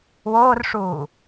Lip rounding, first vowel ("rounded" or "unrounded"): rounded